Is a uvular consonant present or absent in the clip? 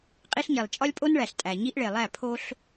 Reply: present